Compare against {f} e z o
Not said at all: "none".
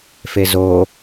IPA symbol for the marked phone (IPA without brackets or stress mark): f